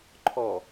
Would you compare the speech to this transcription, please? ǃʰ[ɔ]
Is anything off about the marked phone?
no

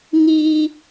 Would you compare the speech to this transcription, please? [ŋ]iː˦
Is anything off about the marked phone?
no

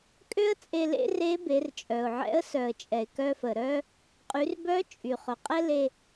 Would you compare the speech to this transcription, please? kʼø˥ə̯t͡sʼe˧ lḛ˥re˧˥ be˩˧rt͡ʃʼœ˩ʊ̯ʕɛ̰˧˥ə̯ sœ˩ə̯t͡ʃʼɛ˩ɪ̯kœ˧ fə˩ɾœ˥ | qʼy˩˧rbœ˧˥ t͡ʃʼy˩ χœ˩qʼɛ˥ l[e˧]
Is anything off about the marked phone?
no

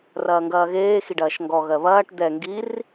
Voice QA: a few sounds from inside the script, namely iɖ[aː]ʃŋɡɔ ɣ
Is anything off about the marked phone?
yes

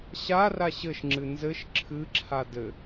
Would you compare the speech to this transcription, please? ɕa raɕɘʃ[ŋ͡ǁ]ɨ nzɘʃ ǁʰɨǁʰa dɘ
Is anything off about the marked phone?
no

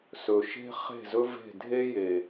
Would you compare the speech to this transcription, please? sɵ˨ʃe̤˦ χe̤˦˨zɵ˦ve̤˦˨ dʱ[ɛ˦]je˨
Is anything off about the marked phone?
yes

